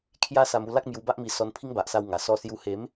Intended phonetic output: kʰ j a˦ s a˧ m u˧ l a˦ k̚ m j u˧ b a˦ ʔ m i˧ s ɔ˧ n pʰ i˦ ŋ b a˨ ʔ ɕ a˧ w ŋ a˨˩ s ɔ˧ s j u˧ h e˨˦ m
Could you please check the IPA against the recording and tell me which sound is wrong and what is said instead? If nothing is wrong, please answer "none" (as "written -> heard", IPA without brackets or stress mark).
ɕ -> s